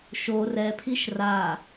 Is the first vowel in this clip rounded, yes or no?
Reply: yes